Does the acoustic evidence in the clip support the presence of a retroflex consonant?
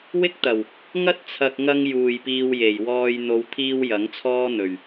no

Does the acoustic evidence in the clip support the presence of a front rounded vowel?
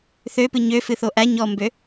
yes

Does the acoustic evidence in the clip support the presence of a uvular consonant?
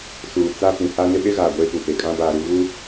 no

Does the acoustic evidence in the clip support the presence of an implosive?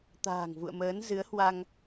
no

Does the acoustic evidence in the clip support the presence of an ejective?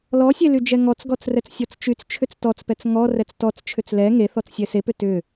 no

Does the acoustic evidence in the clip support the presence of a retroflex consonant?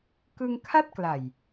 no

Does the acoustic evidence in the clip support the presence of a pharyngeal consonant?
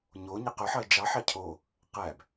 yes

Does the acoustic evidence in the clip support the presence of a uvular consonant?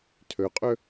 yes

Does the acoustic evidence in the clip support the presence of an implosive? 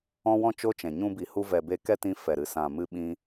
yes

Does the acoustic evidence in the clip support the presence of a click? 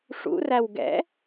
no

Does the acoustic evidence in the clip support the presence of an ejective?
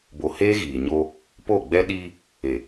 no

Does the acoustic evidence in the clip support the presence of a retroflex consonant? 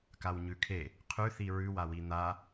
no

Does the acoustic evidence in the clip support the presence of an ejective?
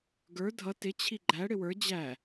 no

